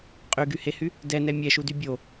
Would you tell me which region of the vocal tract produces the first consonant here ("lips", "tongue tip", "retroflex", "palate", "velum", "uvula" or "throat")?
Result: uvula